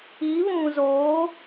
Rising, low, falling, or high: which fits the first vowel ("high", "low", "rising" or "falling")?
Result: rising